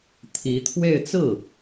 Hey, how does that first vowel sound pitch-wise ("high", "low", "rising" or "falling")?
rising